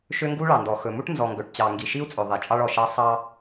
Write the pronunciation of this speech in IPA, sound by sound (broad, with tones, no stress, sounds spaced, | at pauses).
ʃ ø˦ ŋ ɡ u˦ ɭ ɑ˨ n d ɔ˨ x ɵ˨ m u˦ ʈ n z ɔ˨ ŋ ɡ ɵ˨ ʈ t͡ɕ ɑ˨ ŋ ɡ i˨ ʃ i˦ u̯ t͡sʼ ɵ˨ ðˤ i˨ t͡ʃʼ ɑ˦ ɭ ɔ˨ ʃ ɑ˦ sˤ ɑ˦